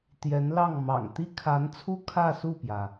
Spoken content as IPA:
t̪ j ɛ˧˥ n l ɑ˥˩ ŋ m ɑ̰˨˩ ŋ t̪ i˥ kʰ a˧˥ n t͡sʰ u˥ kʰ ä˥˧ s u˥˩ p j ä˩

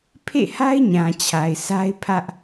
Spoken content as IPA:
pʰ ḛ˦˨ h a˦ ɪ̯ ɲ ã˨ t͡ɕʰ a˨ ɪ̯ sʰ a˦ ɪ̯ pʰ ä˦ ʔ

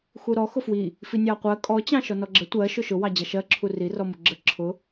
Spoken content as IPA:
x u ɾ ɔ x ʊ f w i | f i nʲ ɑ qʷ ɜ kʼ ɔ t͡ɕ ɑ̃ ʃ ɔ n ɔ ɡ͡ǁ ə tʷ ɜ ʃ ʊ ʃ ʊ w ɑ d͡ʑ ʌ ʃ ɜ ǁʰ u r i r ɔ m u ɡ͡ǁ ə ǁʰ ʊ

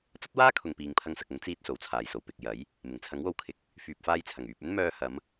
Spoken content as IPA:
t͡s ɐ˥ t̚ w aː˥ kʰ ʊ˨ ŋ p iː˨ ŋ pʰ ɐ˧ ŋ s ɐ˨ k̚ ʊ˨˥ ŋ t͡s iː˧ t̚ s o˨˩ w t͡sʰ aː˨˩ j s o˨˩ w p ɪ˨ k̚ j ɐ˨˥ j | m ɪ˨˩ ŋ t͡sʰ ɐ˨˥ ŋ w o˧ w kʰ ɪ˨ k̚ | f yː˨ p̚ f aː˧ j t͡sʰ ɐ˨˩ ŋ yː˨ p̚ ɵ˥ n m œː˧ h ɐ˨˧ m

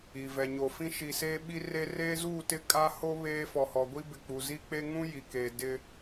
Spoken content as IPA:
i˨ v ɛ˨ ɲ o˨ f ĩ˦ ʃ i˨ s eː˦ ɓ i˦ r e˦ r eː˦ z uː˦˨ t ɪ˦ kʼ a˦ h o˦ β eː˦ f ɔ˨ h ɔ˨ ɡʷ i˦ b ɪ˨ k͡p u˨ z i˦ k͡p e˦ ŋ ũ˦ j i˨ k eː˨ d ɪ˦

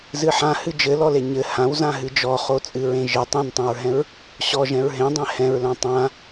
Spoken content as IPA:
z ɨ ħ ã h ɨ d͡ʒ ɘ l ɔ l e ɲ ɘ h ã w z ã ɦ ɨ d͡ʒ ɔ χ o t͡sʼ ɨ ɹ ẽ ʒ ɘ tˤ ẽ n tˤ ẽ ɹ ɦ ɛ̃ ɹ | ɕ ɔ ʒ ɛ̃ ɹ ɦ ẽ dˤ ɛ̃ h ɛ̃ ɹ l ã tˤ ã

